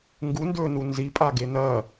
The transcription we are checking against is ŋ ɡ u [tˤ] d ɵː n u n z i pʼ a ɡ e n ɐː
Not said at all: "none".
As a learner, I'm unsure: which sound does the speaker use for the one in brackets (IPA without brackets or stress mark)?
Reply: n